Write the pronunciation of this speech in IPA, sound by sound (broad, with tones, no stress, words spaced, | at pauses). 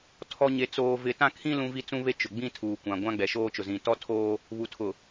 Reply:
tʰɔ˦ ɲe˦t͡soː˦vɪ˦ tã˦kʰĩ˦ lũ˦vi˦ t͡sũ˦βe˦ t͡ʃʊ˨ ɡ͡bĩ˦tʰuː˨ kʷã˨ɡʷã˦ɡ͡bɛ˨ ʃoː˦t͡ʃʊ˨zĩ˨ tɔ˦tʰoː˦ | βu˨tʰʊ˨